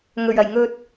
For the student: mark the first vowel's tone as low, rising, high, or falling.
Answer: low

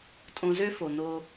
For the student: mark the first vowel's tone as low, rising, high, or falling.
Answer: low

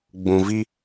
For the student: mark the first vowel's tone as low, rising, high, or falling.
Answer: low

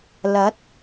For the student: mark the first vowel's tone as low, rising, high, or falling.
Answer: rising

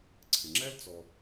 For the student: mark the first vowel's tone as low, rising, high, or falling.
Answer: low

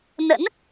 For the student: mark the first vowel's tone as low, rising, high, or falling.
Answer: rising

